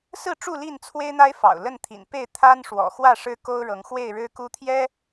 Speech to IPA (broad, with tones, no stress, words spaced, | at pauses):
sɹ̩˥˨ʈ͡ʂu˥˨li˥˨n t͡sʰwe˦ɪ̯n̪a˦ɪ̯fɑ̰˨˩ʊ̯ lə˥˨nt̪ʰḭ˨˩npe˥˨ɪ̯ t̪ʰa˦n ʂwɔ̰˨˩xwä˥˨ ʂɻ̩˦ko˦ʊ̯ ɻɤ˨˦ŋxwe˥˨ɪ̯ ɻɻ̩˦ku˦t̪ʰjɛ˦